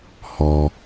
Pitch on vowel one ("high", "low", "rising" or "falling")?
low